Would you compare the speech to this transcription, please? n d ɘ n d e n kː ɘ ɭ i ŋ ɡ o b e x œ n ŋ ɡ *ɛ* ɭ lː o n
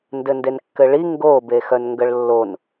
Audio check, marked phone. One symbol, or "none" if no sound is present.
ə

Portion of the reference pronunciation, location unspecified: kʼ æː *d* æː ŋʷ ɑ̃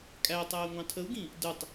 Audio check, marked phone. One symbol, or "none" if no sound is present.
tˤ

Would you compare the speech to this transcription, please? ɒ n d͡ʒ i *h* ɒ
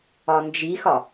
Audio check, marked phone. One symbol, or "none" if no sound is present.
x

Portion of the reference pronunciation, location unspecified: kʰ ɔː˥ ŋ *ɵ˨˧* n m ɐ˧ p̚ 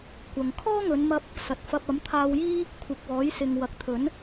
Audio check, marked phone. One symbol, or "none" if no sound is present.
ɵ˨˧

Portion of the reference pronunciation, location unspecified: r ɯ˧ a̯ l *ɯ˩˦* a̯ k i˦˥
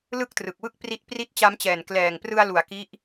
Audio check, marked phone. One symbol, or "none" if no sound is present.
u˩˦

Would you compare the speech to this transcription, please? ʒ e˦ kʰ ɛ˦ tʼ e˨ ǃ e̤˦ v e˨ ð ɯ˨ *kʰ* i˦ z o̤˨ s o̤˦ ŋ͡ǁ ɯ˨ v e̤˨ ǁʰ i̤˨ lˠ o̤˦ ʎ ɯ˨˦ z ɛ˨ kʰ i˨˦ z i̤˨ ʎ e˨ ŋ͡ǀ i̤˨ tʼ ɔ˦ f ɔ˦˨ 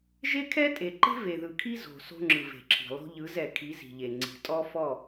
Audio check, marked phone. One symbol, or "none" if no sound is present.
kʰ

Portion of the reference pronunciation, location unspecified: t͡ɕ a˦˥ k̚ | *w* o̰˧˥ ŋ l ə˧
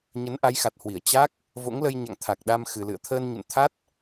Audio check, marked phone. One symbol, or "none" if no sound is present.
v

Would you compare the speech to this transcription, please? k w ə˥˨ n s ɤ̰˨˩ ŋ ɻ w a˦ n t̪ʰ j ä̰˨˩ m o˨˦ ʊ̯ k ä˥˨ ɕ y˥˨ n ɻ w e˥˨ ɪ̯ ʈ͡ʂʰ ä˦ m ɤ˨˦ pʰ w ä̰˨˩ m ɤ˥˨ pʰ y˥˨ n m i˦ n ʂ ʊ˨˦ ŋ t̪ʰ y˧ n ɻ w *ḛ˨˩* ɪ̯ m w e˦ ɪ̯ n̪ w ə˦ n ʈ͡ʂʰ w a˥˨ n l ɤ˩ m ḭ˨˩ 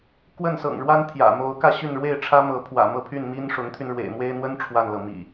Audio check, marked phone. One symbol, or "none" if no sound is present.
ḛ˨˩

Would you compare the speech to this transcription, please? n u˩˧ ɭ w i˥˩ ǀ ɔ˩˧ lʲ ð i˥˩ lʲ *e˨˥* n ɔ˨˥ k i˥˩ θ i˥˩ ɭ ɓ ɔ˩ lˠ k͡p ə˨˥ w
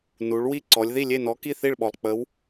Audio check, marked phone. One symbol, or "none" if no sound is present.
e˥˩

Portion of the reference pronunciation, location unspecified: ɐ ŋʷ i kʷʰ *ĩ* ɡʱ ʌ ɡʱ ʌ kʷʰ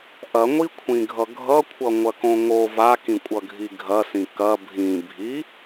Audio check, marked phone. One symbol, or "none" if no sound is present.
ĩ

